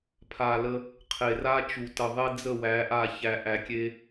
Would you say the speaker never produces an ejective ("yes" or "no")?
yes